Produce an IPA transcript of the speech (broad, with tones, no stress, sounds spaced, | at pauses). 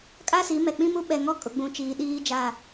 kʼ a˦ s i˨˦ m ɛ˨ k͡p ĩ˦ m u˦ ɓ ɛ˨ ŋ ɔ˦ kʼ ʊ˨ ɡ͡b ũ˨ t͡ʃ iː˨ ɗ iː˦ d͡ʒ a˦˨